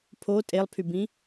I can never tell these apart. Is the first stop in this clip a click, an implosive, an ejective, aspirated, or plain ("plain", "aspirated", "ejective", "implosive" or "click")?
aspirated